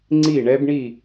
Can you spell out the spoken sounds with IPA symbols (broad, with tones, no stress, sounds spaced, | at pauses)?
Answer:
ŋ͡ǀ i˥˨ ɳ ɛ˦˥ b ɳ i˥˨